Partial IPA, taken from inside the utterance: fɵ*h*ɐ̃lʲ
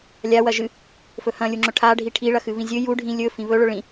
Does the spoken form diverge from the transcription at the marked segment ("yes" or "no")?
no